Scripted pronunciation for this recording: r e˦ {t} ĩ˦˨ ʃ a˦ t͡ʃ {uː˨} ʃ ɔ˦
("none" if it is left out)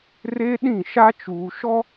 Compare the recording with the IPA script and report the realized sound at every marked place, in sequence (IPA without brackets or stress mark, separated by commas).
ɗ, uː˨